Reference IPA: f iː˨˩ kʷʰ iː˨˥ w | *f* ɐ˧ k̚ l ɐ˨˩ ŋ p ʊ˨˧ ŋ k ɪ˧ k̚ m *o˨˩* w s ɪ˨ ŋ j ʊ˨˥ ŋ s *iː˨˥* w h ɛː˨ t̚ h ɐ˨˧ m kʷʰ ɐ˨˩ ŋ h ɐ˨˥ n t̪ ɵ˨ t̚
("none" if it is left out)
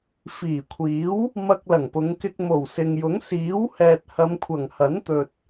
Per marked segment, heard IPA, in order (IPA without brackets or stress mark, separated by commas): m, o˨˩, iː˨˥